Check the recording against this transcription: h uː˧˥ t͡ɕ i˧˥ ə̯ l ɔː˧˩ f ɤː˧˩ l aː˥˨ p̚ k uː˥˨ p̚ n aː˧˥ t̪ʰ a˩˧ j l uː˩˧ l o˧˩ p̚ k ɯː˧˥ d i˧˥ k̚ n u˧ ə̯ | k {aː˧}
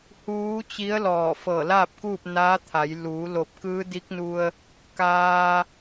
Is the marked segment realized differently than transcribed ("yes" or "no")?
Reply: no